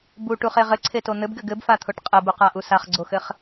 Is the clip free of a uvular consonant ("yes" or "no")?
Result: no